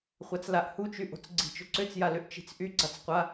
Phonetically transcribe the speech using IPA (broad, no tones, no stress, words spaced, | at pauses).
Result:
χʷat͡slaʔhut͡ʃy ʔo̤t͡sɡ͡ǀi̤t͡ʃʏ ǀʏt͡sjalʏʔt͡ʃi̤t͡s ʔyɡ͡ǀat͡sqʷa